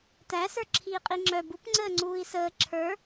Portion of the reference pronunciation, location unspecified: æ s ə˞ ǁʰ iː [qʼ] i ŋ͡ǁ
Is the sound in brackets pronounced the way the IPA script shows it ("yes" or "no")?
yes